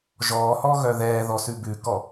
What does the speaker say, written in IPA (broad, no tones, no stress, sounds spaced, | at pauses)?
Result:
ʒ ɔː h ɔ ɣ œ ð ɛː ð ɔ s ʉ b ʉ k ɔ